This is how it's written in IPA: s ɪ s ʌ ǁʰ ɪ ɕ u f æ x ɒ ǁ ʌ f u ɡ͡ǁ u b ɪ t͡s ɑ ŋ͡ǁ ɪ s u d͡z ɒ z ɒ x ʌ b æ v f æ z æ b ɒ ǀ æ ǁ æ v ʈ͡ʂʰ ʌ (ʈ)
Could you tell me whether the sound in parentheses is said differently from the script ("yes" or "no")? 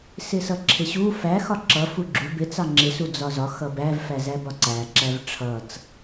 yes